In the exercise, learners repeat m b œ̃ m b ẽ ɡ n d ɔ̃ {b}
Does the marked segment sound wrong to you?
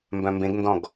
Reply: yes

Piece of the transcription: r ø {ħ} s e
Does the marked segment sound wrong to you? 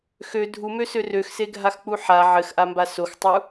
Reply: yes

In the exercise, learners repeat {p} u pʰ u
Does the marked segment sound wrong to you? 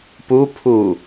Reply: no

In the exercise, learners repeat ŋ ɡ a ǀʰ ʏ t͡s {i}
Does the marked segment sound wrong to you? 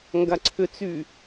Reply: yes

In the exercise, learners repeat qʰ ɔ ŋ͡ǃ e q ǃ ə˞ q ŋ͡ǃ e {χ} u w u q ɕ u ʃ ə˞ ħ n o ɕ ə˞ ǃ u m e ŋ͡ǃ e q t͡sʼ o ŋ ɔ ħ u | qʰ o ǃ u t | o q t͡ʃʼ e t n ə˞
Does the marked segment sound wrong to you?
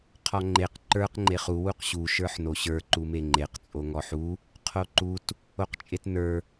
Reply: no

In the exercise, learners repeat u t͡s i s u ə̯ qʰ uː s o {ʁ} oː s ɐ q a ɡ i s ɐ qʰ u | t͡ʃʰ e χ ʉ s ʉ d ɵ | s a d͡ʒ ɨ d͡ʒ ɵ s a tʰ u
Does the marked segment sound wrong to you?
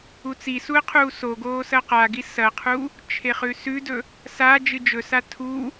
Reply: yes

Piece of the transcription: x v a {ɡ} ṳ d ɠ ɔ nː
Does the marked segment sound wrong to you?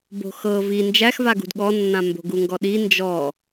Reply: no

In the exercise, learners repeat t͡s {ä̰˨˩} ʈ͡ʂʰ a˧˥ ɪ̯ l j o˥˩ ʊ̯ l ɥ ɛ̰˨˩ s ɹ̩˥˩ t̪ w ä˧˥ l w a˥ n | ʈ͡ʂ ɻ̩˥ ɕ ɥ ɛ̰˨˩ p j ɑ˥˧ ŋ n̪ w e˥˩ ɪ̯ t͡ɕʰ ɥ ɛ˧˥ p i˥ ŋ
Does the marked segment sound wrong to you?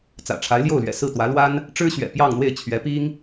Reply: no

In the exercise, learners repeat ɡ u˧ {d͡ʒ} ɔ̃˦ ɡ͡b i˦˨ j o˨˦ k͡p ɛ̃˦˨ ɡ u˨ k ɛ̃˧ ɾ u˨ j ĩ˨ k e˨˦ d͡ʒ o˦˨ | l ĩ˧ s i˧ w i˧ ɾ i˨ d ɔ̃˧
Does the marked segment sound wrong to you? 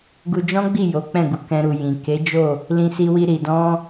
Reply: no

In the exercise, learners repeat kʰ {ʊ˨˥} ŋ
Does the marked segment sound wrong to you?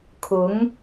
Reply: no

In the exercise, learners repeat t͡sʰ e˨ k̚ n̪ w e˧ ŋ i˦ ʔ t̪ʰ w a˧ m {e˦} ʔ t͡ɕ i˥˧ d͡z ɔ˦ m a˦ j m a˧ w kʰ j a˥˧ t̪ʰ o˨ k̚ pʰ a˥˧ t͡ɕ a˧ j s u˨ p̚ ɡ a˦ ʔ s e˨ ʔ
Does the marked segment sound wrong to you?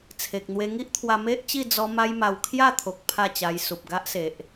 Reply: no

